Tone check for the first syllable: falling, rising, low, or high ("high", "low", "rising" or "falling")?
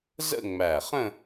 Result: falling